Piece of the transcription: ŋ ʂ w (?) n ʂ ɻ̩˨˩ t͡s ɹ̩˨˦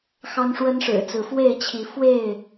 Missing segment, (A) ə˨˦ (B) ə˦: B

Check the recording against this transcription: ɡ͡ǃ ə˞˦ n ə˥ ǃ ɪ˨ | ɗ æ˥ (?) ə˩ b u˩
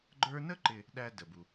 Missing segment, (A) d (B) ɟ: A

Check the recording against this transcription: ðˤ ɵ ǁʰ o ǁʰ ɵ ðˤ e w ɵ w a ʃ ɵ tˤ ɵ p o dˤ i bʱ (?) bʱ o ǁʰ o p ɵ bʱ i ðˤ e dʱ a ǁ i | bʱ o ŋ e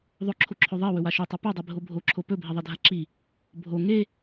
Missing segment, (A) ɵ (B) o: B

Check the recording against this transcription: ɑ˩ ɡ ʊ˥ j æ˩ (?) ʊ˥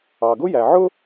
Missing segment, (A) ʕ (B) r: A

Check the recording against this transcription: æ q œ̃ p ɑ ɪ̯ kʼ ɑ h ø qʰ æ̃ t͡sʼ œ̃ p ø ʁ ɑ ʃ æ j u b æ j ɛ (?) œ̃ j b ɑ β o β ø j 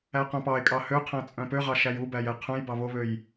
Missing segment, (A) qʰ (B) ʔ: A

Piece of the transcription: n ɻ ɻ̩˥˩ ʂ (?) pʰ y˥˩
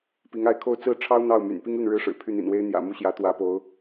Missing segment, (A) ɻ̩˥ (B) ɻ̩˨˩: B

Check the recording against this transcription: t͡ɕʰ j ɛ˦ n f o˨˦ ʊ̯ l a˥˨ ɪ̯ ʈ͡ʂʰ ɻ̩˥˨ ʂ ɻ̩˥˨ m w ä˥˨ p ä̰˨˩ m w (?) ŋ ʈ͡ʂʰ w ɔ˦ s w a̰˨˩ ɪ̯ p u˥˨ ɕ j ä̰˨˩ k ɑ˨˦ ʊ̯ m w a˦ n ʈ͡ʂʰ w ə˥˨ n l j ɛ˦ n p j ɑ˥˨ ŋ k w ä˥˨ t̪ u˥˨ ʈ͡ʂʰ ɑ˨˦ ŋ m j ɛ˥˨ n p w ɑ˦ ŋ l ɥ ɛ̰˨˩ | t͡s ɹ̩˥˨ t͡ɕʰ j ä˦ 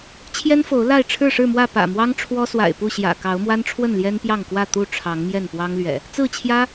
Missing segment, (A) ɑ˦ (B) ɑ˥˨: A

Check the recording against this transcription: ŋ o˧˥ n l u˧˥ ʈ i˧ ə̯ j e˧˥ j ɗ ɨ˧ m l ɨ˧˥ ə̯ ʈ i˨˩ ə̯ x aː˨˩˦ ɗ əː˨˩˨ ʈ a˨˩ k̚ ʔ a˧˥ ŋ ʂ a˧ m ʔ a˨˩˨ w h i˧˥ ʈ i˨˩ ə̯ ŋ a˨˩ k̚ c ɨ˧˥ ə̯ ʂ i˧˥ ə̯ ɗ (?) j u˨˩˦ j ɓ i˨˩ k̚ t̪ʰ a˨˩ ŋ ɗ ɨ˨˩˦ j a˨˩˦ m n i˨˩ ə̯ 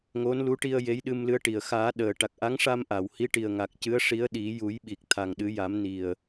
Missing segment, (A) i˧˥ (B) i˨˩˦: B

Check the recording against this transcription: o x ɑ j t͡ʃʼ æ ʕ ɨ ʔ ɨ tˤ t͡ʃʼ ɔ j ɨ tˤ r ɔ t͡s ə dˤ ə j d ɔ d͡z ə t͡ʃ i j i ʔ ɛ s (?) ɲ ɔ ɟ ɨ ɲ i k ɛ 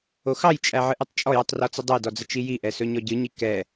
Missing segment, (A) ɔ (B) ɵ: B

